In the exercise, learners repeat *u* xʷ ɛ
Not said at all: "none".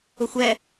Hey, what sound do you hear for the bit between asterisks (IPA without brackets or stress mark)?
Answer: ʊ